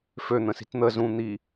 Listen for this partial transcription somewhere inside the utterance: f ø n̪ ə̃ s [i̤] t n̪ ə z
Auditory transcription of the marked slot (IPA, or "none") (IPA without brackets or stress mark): i̤